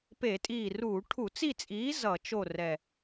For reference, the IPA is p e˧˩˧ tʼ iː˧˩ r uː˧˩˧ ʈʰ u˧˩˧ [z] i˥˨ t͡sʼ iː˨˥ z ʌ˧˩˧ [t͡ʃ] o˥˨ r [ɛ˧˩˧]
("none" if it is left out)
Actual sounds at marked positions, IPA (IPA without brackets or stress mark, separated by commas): t͡s, t͡ʃ, ɛ˧˩